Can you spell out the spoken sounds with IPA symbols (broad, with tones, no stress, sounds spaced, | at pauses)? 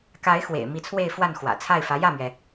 k a˧˥ ɪ̯ x w ḛ˨˩ ɪ̯ m i˧˥ t͡sʰ w e˥˧ ɪ̯ f w a˥˩ n x w ä̰˨˩ t͡sʰ a˥˩ ɪ̯ f ä˧˥ j ä˥˩ m ɥ ɛ˩